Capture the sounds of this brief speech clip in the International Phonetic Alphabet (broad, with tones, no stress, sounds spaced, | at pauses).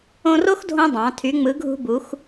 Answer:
õ˧ r o˥ x dʱ õ˧ dˤ ɑ̃˩˧ tʰ y˩˧ ŋ͡m ɯ˩˧ ɡʱ ṳ˧ b u˩˧ x